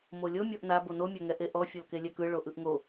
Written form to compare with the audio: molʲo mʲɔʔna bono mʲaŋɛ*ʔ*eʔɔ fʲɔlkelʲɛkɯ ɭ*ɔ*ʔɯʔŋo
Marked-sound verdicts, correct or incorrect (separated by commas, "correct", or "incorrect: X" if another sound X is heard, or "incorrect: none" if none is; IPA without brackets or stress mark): correct, incorrect: o